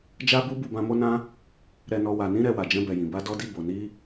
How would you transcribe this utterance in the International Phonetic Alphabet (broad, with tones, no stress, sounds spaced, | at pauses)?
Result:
d͡ʒ a˦ b u˦ b u˦˨ b ã˧ m o˦ n ã˦ | ɾ ɛ˧ n ɔ˧ w a˨ n ĩ˧ ɾ ɛ˧ w a˨ d͡ʒ ɛ̃˧ b ɛ˨ j ĩ˨ b a˧ d ɔ˧ d i˧ b o˨ n i˧